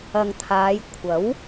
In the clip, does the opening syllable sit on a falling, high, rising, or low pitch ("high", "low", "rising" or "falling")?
low